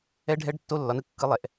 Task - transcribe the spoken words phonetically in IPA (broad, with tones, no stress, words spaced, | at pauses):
ɛ˦˥ɖʱɛ˦˥ɖ tːo˦˥lːɒ˩˥nɯ˦˥ kːɯ˦˥lˠɛ˨ʔ